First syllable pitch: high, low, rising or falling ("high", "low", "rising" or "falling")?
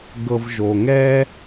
low